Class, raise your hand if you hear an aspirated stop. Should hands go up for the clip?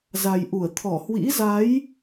yes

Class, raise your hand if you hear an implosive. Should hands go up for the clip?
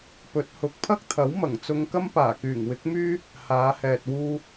no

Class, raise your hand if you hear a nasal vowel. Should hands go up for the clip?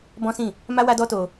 yes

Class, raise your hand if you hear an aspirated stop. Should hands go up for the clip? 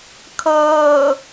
yes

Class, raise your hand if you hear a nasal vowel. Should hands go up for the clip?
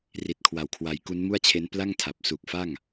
no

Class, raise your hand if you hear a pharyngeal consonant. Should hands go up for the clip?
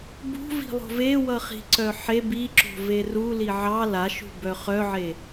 yes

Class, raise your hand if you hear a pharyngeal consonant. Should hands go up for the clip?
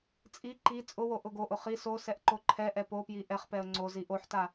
yes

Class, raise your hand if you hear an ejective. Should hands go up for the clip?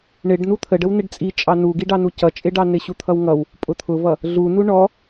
yes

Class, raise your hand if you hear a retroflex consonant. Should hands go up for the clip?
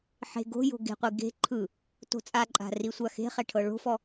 yes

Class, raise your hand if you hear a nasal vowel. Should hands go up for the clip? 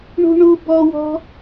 no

